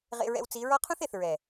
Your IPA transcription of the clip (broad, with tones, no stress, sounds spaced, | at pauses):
ʁ ḛ˧ ɹ ɛ̰˧ w t͡s i˨˦ ɹ ɔ˦ qʰ ũ˦ θ e˨ θ ɹ ɛ˨